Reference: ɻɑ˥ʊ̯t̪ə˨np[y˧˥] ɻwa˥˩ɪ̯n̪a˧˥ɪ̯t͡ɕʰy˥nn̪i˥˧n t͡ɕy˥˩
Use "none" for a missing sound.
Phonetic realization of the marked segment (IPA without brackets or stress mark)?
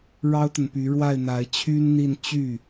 y˧˥